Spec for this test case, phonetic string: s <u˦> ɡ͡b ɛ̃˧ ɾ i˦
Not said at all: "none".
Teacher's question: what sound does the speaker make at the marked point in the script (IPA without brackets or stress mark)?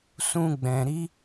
ũ˦